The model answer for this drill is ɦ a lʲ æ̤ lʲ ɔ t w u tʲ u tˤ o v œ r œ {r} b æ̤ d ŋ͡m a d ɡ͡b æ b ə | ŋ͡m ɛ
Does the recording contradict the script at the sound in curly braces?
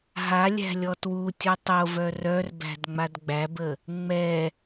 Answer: no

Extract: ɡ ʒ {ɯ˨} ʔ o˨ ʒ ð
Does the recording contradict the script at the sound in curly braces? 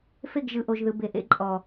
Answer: no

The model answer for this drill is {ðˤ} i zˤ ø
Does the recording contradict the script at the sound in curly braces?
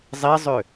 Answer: yes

